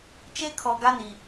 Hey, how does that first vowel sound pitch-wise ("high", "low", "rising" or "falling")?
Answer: high